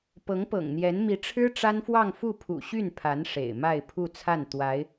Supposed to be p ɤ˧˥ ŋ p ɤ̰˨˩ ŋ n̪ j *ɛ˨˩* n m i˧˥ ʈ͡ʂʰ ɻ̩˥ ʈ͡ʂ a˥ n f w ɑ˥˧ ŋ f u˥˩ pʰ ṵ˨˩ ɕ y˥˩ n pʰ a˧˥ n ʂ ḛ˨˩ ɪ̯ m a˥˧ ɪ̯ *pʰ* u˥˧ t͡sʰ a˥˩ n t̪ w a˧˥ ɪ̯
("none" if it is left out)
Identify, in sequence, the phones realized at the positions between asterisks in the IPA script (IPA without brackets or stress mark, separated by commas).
ɛ˧˥, pʰ